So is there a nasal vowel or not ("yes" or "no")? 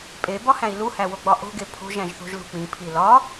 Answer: yes